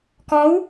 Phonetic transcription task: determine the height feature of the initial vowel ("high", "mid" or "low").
mid